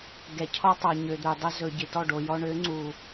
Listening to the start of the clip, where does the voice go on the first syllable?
low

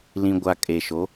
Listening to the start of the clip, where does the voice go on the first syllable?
high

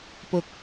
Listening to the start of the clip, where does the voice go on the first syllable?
low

